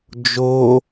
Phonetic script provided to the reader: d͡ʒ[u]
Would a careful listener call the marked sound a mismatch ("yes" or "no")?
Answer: yes